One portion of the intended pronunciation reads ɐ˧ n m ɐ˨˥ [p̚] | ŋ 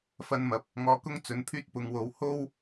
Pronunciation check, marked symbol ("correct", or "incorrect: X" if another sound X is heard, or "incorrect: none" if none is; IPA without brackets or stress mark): correct